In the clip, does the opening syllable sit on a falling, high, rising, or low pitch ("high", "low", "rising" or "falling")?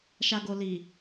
low